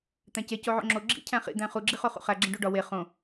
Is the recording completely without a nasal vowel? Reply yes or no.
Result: no